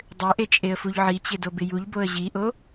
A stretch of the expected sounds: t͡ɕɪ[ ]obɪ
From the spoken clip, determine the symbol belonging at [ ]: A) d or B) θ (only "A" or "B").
A